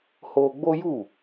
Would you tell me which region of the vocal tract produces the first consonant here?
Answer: throat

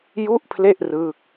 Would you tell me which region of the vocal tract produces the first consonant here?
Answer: palate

